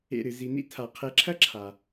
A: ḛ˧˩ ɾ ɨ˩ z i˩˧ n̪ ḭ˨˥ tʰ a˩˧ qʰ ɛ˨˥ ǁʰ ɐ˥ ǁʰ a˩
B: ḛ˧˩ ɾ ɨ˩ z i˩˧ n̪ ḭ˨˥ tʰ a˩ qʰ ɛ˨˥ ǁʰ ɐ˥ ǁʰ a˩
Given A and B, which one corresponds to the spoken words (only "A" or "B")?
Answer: A